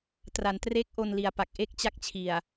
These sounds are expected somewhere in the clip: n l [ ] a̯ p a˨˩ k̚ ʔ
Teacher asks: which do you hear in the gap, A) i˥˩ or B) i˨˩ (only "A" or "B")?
B